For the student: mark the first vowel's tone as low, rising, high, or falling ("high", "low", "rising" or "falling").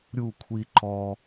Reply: falling